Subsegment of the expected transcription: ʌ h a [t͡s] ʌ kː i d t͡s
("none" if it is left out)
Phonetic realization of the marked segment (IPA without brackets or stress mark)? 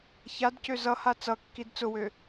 t͡s